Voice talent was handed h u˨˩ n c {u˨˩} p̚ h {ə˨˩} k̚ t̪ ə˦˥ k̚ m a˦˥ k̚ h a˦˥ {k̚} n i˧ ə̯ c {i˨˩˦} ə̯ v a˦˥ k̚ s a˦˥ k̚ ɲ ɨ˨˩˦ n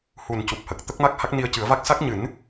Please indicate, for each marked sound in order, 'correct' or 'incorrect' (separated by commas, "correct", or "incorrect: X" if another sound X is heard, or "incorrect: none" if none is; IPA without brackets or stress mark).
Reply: correct, correct, correct, incorrect: ɨ˨˩˦